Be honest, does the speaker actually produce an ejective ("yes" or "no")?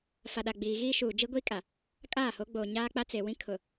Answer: yes